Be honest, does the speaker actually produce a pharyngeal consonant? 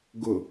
no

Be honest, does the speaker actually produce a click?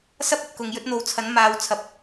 no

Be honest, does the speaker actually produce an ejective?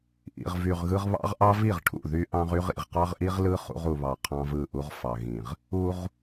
no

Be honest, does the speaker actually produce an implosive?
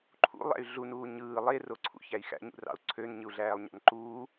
no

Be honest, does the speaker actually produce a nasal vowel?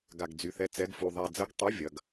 no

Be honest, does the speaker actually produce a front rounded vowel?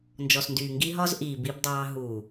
yes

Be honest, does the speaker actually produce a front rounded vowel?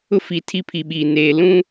no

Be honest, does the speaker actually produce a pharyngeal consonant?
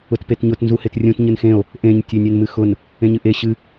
no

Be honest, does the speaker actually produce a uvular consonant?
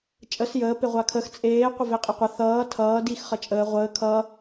yes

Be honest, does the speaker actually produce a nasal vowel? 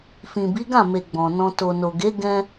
yes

